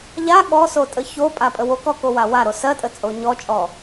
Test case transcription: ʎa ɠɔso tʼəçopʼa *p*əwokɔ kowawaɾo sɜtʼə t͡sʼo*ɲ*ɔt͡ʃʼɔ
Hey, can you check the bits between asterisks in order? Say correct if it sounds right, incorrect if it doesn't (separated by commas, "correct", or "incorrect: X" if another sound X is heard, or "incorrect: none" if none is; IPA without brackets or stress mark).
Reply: incorrect: pʼ, correct